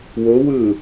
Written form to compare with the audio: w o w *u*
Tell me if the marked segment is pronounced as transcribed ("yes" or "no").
no